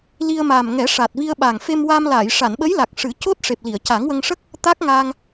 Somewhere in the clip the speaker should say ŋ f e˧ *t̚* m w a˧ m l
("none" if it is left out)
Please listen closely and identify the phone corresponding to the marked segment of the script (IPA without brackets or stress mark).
none